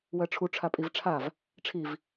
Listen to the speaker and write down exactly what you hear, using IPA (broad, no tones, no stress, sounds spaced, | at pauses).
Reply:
w ɜ ʈ͡ʂʰ u ʈ͡ʂʰ a pʼ i v ʈ͡ʂʰ a v | ʈ͡ʂʰ i v